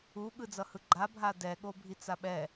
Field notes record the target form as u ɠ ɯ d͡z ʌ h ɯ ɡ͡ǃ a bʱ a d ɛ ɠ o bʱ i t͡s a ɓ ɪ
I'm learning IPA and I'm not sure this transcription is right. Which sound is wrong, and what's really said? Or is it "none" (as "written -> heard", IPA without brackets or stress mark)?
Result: ɪ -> ɛ